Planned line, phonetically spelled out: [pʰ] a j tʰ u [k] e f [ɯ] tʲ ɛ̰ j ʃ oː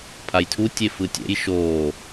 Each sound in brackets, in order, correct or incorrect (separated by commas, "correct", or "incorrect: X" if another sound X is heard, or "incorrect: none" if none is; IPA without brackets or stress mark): correct, incorrect: tʲ, correct